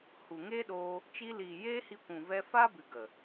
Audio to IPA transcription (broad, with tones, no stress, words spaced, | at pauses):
hu˨ŋeː˦ɗoː˧ | t͡ʃi˧liː˨ jeː˦hi˧kʷũ˨ vɛ˧fa˦bɨ˨ ɡə˨